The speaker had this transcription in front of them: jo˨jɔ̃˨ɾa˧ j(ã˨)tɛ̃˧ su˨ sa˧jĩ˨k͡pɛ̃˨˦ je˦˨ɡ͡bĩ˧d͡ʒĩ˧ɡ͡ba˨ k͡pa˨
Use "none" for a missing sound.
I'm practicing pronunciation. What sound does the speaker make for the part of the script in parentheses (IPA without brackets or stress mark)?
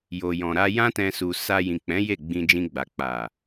ã˦